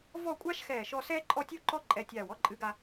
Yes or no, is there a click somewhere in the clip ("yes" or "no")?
yes